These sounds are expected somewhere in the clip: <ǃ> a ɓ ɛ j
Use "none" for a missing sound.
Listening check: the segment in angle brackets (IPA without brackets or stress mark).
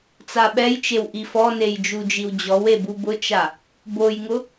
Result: t͡s